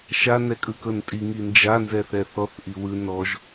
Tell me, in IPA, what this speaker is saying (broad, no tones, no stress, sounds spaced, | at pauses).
ʃ a n ɛ kʼ ɯ k ɤ n tʼ i ŋ i n d͡ʒ a n z ɛ θ ɛ θ ɔ θ ʔ i w ɯ n ɔ ʒ